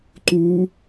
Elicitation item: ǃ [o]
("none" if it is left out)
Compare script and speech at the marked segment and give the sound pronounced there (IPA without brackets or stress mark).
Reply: u